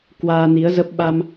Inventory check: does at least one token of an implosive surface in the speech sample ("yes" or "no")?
yes